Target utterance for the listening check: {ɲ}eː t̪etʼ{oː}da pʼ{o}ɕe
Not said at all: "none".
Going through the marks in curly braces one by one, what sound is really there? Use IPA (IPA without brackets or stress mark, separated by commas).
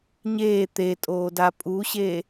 ɲ, oː, u